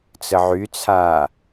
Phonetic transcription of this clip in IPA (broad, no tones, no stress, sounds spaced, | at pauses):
t͡s ə ʕ y t͡sʰ aː